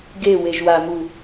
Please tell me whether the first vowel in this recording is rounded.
no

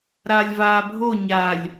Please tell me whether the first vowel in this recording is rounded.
no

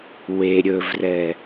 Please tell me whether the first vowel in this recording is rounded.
no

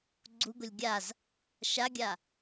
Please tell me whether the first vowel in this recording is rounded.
yes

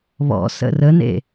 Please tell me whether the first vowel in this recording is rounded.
yes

